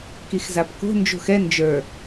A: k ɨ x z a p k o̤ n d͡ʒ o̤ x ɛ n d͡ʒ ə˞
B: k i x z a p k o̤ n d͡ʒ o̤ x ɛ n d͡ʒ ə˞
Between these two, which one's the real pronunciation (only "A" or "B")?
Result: B